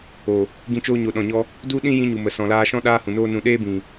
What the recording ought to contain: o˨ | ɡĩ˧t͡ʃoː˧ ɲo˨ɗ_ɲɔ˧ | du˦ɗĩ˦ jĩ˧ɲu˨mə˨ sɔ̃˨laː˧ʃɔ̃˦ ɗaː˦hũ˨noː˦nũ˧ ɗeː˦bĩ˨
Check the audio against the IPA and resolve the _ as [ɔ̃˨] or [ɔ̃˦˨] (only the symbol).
ɔ̃˨